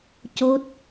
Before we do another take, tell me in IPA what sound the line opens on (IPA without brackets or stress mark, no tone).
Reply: c